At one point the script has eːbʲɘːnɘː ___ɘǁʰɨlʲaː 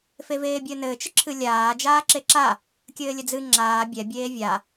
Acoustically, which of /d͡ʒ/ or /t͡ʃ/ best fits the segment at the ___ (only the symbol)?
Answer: t͡ʃ